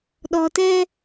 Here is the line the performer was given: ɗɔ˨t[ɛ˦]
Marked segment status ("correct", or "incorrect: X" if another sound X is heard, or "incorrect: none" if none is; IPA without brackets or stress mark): correct